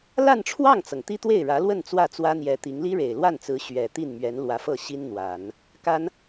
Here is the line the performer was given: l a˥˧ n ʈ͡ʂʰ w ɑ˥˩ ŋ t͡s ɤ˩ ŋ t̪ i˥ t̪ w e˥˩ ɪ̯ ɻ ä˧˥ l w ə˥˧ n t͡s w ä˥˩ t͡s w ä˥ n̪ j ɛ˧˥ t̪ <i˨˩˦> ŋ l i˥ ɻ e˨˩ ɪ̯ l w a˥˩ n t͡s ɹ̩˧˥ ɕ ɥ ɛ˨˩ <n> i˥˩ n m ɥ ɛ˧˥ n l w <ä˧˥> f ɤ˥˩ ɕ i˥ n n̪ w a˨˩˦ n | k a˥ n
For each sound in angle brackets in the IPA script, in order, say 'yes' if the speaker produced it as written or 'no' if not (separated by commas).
no, no, yes